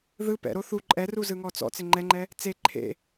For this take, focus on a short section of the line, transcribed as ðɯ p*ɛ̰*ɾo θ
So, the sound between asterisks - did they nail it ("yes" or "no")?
yes